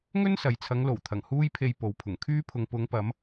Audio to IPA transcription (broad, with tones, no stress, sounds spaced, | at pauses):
ŋ ɵ˥ n s ɐ˨ j t͡sʰ ɐ˨˧ ŋ l o˨˩ w t̪ʰ ɐ˨˩ ŋ h uː˥ j pʰ e˧ j p o˨ w pʰ ʊ˨˩ ŋ kʰ yː˥ pʰ ʊ˨ ŋ p ʊ˨˧ ŋ p ɐ˨˧ m